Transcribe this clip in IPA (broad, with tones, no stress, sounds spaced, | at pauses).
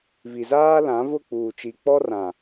v i˨ z aː˦ l ã˨˦ v ʊ˦˨ k͡p uː˨ t͡ʃ i˨ k͡p ɔ˦ r ã˨